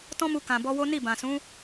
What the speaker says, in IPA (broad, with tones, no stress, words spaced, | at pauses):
tɔ̃˦mu˧ kã˨bɔ˧wo˦ ni˦˨bã˨ sũ˨˦